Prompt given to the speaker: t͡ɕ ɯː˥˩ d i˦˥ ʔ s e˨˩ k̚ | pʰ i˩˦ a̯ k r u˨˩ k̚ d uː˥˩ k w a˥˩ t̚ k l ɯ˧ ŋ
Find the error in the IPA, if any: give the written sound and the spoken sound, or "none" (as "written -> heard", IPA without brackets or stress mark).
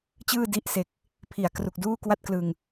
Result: none